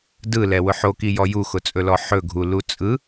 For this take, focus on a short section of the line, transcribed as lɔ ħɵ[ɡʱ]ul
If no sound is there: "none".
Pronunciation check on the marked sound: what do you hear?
ɡʱ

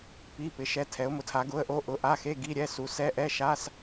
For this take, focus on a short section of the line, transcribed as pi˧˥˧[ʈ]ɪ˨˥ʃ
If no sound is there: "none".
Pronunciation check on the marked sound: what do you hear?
p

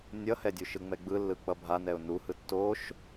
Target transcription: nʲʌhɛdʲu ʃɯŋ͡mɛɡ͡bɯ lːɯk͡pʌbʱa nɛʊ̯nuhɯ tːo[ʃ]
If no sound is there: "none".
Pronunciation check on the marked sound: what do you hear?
ʃ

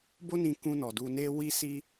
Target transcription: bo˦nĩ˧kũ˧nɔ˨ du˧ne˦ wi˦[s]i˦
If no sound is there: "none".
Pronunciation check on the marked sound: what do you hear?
s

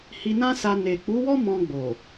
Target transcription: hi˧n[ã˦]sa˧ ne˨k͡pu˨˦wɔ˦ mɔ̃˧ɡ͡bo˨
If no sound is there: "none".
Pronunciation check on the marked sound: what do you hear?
ã˦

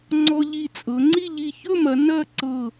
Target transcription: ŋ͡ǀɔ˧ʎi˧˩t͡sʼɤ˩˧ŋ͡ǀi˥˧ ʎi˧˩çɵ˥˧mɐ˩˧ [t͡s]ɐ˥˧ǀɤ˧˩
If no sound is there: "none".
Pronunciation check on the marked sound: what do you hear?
n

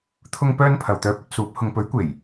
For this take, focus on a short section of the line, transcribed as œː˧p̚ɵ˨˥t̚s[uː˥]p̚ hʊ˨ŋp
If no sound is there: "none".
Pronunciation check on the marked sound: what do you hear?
uː˨˥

